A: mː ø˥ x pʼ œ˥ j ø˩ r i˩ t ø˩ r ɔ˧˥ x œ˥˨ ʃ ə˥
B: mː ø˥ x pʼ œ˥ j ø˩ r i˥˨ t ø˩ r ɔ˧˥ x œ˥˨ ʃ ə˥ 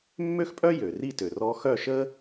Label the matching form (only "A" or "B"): B